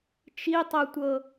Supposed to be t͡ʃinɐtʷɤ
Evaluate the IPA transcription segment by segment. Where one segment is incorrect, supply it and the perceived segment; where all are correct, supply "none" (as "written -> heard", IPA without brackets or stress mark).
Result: n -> tˤ